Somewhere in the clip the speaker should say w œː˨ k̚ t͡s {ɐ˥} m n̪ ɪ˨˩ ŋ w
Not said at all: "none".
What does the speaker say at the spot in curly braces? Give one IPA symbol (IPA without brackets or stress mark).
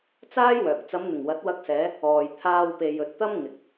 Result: ɐ˨˧